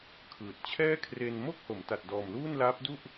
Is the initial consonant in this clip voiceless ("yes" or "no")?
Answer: yes